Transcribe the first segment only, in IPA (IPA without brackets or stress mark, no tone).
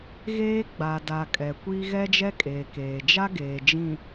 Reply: ɣ